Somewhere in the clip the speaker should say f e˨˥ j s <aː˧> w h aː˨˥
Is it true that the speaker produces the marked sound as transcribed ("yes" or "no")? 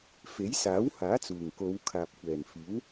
no